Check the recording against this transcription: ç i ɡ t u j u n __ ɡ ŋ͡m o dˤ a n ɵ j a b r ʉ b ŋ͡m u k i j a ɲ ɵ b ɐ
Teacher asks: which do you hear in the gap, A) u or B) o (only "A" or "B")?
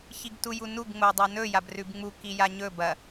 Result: A